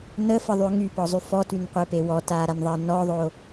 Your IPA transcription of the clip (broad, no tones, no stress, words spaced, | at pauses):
nəfəðˤyʊ̯ ŋypɔzˤy fɔtynqʷepe wɔtaɾanðˤeə̯ nɔðˤo